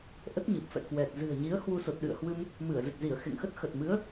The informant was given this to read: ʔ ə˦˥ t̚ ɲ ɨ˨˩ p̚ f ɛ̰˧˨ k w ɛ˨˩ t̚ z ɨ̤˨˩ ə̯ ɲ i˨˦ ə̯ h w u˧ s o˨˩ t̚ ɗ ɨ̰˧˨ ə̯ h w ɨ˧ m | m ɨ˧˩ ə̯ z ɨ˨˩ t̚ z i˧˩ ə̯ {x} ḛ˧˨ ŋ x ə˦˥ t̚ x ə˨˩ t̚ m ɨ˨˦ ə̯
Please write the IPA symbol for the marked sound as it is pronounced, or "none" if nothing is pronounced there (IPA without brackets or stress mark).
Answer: x